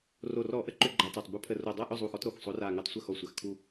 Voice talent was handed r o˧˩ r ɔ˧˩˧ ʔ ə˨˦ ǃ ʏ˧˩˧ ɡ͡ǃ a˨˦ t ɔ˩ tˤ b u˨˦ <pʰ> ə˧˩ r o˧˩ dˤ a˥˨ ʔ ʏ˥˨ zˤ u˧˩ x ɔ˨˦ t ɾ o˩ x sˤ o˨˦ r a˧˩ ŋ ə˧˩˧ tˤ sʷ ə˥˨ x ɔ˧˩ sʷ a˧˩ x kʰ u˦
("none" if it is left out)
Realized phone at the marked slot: pʰ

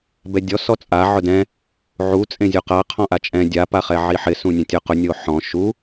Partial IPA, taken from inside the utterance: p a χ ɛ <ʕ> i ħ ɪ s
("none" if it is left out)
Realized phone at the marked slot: ʕ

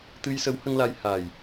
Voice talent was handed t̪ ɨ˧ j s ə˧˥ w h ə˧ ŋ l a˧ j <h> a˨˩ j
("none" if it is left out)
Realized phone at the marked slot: h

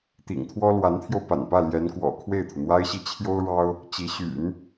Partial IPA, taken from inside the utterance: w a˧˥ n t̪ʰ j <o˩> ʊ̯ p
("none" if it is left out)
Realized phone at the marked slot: o˧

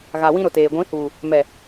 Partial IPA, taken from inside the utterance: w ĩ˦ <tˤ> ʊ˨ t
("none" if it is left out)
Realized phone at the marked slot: ɾ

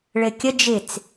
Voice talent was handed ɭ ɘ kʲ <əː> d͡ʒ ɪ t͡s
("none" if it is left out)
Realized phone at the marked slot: ə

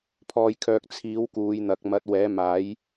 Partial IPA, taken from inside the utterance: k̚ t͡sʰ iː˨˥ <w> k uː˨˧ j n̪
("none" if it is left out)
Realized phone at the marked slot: w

